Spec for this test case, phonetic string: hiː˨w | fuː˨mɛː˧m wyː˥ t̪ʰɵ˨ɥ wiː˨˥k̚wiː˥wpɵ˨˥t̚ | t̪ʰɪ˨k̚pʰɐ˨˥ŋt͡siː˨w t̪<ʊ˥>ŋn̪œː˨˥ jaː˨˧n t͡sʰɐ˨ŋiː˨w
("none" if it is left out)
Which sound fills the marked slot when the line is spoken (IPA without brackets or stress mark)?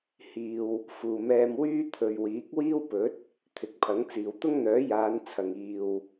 ʊ˥